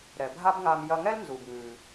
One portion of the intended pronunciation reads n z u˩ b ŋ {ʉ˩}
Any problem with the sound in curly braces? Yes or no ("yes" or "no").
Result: no